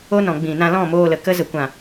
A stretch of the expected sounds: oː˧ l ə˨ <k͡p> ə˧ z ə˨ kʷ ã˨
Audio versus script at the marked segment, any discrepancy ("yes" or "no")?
yes